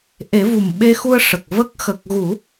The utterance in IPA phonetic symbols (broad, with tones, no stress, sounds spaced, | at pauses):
ʔ e˨˩˦ v u˨˩ m ɓ e˧ x u˧ ə̯ ʂ ə˨˩ k̚ v ə˦˥ k̚ x ə˨˩ k̚ ɣ u˨˩˦